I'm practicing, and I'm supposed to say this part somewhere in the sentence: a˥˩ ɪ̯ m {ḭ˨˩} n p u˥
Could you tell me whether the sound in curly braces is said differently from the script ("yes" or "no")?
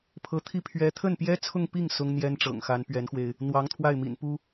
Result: no